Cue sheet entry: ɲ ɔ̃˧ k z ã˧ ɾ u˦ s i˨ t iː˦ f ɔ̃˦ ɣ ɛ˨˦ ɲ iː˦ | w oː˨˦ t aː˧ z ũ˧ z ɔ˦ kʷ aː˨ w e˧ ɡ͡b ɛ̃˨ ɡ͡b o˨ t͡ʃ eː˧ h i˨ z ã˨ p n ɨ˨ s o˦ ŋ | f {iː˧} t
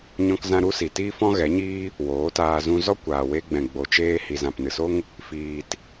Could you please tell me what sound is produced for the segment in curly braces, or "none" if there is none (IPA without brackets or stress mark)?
iː˨